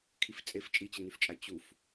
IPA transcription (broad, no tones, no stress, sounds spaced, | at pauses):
kʰ i f t͡sʼ e f t͡ʃʼ i t͡ɕ ə n y f t͡ʃʼ a t͡ɕ u f